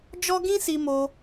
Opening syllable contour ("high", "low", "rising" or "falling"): high